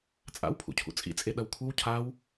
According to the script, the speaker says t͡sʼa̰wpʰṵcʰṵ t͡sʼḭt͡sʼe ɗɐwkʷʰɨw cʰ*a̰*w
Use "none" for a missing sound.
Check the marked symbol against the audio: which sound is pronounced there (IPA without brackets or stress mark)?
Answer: a